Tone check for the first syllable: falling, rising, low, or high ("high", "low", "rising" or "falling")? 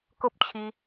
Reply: high